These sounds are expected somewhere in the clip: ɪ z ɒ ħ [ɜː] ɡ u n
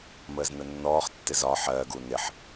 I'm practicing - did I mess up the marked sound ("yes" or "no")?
no